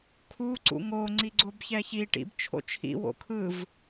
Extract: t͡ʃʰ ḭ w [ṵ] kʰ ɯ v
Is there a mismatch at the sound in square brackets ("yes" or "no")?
yes